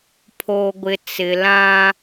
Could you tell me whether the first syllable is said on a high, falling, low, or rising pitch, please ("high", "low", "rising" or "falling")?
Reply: low